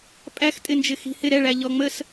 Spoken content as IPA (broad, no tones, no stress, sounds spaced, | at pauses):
pʼ æ x tʼ ɪ n d͡ʒ ɪ x i̤ h ɪ ɾ ɛ ɭ æ ʎ ɔ ŋ͡m ə s